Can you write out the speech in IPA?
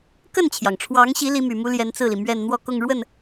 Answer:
kə˥˩nt͡ɕʰjɑ˩ŋʈ͡ʂʰwɑ˧˥ŋɕi˧˥ li˧˥my˨˩mu˥ljɛ˧˥n t͡sɹ̩˥˩li˩ mɥɛ˥˧n n̪wɔ˥˧kʊ˥˧ŋɻwə˥˩n

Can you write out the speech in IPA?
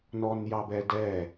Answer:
nɔnjɑbɛdɛ

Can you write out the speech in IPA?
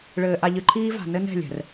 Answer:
ɭɘː˨ʔa˨ʎɨ˨ǃʰiː˦ va̤˨nɘ˦nɛ̤˦˨lʲɛ̤˨r

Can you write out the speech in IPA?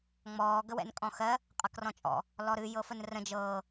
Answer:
ŋ͡mɔː ɡəwɛ̰nkʼɔ̃xɜ | qʼɤkrɔ̃t͡ʃʼɔ̰ | lɔɾɨ jɤfənrə̃ d͡ʒɤː

